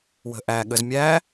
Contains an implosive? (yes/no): yes